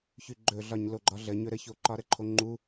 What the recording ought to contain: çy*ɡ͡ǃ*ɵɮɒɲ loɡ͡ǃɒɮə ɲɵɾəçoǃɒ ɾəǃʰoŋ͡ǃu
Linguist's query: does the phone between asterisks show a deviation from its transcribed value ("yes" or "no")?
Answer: no